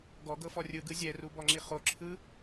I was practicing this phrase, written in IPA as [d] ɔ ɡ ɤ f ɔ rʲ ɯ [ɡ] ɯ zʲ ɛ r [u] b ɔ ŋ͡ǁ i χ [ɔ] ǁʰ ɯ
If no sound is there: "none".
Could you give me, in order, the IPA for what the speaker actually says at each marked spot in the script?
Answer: ɡ, ɡ, u, o

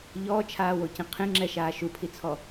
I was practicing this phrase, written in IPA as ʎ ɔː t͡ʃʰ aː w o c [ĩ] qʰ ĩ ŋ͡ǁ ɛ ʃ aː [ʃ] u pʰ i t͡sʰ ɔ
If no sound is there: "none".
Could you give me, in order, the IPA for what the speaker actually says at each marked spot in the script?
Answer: ĩ, ʃ

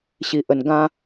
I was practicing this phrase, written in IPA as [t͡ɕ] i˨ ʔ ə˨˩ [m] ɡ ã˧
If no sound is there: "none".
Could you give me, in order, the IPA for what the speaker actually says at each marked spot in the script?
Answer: ɕ, n

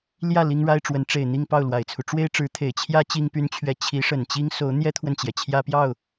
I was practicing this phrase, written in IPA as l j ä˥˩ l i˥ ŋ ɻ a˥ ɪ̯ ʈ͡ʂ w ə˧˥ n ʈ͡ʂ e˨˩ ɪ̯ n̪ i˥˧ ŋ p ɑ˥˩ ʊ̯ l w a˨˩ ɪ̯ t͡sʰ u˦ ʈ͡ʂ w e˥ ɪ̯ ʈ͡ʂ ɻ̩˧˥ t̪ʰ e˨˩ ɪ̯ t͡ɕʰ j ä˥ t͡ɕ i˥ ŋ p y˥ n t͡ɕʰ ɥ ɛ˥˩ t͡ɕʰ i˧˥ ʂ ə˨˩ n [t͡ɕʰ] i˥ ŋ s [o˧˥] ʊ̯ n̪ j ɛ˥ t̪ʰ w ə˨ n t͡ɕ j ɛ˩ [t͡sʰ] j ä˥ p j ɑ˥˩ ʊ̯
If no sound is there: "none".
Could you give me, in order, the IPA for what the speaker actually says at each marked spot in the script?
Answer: t͡ɕ, o˧˥, t͡ɕʰ

